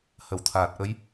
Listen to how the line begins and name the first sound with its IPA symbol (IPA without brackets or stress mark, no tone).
h